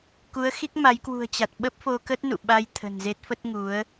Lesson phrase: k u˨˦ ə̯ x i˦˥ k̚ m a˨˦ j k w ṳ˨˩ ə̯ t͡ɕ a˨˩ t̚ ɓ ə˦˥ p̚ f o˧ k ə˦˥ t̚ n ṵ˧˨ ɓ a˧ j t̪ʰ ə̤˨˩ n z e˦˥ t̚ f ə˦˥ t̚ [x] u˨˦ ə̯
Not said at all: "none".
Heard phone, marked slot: ŋ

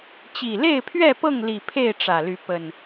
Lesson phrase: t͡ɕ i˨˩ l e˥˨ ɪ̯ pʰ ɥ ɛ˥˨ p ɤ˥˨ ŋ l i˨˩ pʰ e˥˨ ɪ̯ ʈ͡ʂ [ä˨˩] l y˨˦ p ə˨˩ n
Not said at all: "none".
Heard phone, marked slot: ä˨˩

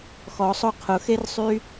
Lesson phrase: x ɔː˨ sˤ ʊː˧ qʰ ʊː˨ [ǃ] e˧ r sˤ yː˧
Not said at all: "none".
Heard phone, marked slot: x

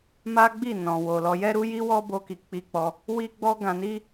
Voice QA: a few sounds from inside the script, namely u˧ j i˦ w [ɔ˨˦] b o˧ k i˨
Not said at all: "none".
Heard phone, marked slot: ɔ˦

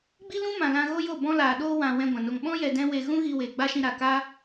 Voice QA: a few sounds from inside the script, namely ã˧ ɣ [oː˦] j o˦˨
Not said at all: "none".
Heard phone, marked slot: o˦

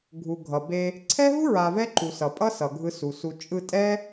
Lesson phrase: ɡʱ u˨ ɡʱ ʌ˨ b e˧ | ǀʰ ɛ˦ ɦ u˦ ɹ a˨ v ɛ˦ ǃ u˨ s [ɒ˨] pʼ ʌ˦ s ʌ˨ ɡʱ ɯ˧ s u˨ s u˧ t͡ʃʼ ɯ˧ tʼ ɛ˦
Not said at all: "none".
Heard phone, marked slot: ʌ˨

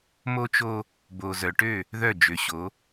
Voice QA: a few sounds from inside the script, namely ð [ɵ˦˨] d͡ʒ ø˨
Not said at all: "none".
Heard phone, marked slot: œ˦˨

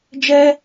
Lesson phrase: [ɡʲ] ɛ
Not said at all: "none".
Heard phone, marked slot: d͡ʒ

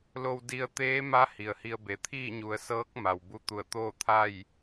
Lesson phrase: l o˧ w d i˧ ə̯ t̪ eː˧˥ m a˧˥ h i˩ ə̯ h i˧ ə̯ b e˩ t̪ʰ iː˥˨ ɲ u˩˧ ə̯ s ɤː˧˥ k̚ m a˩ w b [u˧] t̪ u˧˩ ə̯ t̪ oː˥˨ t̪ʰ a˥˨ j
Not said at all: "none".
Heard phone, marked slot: u˧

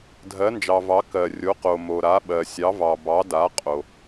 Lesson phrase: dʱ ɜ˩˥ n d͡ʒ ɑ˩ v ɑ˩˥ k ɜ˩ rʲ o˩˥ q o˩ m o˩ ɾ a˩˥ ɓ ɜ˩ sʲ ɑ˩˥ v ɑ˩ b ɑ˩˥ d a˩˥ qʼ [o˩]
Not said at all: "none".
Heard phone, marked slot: o˩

